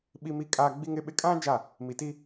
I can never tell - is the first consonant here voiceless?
no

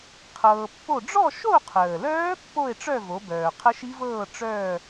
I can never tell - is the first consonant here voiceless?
yes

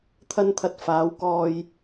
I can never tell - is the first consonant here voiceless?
yes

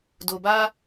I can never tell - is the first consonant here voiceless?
no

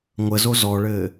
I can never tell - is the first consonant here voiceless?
no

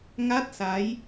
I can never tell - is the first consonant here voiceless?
no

